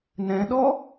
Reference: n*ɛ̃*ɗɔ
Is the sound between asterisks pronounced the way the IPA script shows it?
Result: yes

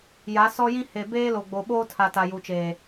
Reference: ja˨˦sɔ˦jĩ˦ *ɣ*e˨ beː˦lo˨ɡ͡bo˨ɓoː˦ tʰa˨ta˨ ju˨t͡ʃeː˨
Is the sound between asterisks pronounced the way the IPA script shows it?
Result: no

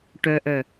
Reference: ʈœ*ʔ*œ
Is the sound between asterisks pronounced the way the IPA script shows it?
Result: yes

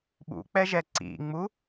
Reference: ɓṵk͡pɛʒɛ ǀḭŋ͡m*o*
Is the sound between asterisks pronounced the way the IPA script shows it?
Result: no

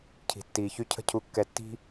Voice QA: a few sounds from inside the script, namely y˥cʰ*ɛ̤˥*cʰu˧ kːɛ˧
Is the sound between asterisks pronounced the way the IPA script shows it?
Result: no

